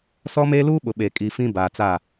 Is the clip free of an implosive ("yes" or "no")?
no